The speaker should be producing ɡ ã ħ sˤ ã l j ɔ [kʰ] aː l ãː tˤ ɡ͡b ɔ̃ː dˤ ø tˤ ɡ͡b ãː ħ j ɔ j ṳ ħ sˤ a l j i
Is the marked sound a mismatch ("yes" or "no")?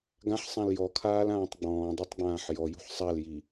no